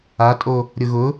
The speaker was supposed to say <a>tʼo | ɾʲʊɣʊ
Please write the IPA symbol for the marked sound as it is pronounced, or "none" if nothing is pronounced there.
a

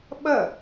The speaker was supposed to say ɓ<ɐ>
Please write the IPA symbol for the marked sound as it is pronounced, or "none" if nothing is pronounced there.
ɐ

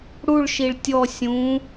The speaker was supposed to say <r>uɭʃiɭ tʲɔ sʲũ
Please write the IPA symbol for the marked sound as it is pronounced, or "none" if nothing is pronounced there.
ɽ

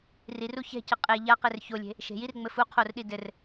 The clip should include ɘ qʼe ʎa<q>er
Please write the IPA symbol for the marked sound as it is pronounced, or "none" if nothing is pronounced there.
q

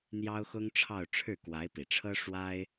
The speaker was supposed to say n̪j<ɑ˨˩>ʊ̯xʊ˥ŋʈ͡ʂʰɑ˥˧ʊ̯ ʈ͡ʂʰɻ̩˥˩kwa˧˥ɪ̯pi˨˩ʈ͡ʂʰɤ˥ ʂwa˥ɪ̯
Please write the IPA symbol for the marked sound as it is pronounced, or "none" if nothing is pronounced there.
ɑ˥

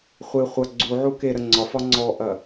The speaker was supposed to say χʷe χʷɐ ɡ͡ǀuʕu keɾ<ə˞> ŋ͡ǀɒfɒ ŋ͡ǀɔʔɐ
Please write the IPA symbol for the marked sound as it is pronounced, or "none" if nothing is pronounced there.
ə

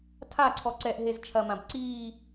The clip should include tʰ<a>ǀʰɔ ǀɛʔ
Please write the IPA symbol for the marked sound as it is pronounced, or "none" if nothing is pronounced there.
a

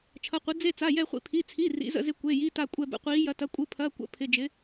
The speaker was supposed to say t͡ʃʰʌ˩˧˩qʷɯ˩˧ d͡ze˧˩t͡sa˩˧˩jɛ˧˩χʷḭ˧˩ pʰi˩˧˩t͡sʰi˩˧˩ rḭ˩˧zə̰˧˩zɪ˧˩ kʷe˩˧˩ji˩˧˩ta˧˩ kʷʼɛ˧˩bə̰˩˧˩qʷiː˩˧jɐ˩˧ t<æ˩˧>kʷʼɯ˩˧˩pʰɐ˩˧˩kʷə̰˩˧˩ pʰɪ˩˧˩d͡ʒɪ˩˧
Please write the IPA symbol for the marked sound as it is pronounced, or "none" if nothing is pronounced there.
ɐ˩˧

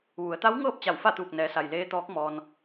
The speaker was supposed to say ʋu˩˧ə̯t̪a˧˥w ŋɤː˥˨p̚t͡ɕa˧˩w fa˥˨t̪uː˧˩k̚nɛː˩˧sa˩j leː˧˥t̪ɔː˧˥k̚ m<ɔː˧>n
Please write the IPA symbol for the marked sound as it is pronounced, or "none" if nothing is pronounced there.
ɔː˧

